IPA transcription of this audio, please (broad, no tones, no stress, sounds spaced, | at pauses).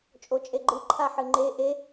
t͡ʃʼ o t͡ʃʼ e ɡ͡ǃ ɨ ǃʰ a ħ ɨ ŋ͡ǃ e ʔ e